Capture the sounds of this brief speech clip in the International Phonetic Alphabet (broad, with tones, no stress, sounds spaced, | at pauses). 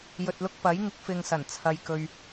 j ɵ˨ t̚ l ʊ˧ k̚ p ɐ˨˥ j ŋ ɪ˨˥ k̚ f ɪ˨ ŋ s ɐ˨˩ n t͡sʰ ɐ˨ j k ɵ˧ ɥ